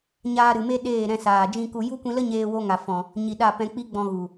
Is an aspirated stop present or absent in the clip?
absent